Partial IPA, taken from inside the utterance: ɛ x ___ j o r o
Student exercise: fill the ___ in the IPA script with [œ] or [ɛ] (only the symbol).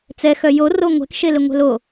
œ